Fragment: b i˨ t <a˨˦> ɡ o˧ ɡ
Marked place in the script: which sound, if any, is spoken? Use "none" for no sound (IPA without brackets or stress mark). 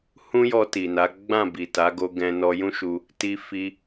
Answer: a˨˦